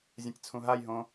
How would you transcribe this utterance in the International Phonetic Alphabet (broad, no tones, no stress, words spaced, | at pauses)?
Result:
zʲɐ̃tʲt͡sʰũɦajɦõ